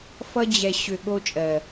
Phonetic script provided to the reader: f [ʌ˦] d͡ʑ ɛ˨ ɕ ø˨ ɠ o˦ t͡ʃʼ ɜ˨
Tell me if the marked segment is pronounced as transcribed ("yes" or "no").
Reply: yes